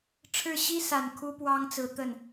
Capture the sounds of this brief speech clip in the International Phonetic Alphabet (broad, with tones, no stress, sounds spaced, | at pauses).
ʈ͡ʂʰ ɻ̩˥˩ ɕ i˥ s a˨˩ n kʰ u˥ p w ɑ˥ ŋ t͡s ɹ̩˧˥ t̪ ə˥˩ n